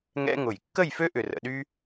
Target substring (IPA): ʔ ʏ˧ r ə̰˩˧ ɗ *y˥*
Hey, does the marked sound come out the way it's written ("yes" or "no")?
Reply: yes